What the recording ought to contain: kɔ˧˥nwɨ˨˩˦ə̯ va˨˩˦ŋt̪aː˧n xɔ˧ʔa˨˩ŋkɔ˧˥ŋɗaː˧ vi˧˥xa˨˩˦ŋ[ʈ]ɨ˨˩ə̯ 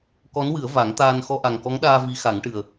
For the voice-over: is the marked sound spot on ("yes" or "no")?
yes